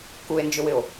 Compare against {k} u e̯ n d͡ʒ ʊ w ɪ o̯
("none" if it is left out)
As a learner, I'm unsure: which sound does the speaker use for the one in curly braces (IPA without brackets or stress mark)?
k